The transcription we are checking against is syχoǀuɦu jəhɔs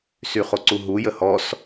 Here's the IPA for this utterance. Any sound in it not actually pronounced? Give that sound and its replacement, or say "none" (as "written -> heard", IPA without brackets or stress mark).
none